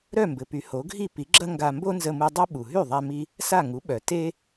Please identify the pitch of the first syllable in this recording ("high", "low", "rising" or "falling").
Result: falling